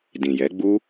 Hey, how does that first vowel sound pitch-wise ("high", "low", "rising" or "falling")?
low